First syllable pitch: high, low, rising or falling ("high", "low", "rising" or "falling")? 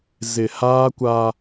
low